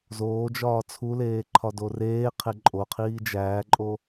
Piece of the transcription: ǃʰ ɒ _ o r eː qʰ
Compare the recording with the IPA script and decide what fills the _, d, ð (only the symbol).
d